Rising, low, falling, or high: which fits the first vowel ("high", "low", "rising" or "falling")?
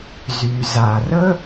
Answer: low